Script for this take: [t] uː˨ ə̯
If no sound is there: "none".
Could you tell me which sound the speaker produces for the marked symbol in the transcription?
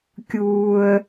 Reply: kʲ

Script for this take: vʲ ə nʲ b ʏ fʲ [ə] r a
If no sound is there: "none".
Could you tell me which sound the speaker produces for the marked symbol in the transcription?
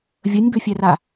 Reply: ɛ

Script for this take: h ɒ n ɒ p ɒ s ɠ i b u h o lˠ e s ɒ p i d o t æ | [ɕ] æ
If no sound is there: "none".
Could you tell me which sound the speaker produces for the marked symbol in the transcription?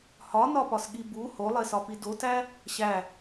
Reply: ɕ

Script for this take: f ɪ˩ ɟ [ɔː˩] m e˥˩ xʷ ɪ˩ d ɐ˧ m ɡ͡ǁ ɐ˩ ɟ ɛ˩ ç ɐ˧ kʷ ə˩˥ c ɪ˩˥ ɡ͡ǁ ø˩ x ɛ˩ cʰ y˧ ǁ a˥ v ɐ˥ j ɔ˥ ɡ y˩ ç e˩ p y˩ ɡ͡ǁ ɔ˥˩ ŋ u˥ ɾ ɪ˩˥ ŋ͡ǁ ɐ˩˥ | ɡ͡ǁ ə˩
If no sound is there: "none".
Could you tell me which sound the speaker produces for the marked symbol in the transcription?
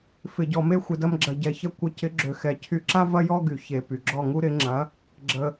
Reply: ɔ˩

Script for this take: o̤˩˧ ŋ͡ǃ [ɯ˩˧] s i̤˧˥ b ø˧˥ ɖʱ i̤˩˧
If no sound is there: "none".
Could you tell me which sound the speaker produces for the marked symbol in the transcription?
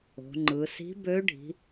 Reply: ɯ˩˧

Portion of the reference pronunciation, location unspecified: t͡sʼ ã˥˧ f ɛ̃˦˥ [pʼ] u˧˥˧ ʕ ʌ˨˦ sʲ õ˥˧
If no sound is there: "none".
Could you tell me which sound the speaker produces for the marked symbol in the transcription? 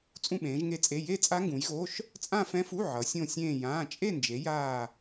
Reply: f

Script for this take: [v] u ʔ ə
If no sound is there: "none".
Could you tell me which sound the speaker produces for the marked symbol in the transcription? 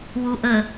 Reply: w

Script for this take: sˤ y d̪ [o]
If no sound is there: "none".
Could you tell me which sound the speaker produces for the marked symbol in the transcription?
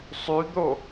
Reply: o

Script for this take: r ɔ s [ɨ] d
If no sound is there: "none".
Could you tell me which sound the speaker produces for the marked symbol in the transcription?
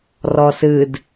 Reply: ɨ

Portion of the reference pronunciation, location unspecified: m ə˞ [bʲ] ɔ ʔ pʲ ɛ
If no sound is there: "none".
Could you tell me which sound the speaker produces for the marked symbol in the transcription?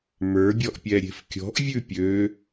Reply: bʲ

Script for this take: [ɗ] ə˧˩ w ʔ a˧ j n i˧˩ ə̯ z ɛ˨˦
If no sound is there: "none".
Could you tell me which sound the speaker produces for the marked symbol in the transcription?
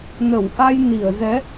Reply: n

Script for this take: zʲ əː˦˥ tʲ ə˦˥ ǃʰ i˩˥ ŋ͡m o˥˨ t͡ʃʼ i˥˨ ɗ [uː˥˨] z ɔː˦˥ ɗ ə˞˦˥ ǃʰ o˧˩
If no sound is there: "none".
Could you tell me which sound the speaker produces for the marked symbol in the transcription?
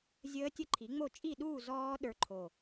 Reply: uː˥˨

